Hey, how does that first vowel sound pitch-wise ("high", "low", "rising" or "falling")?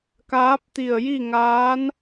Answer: rising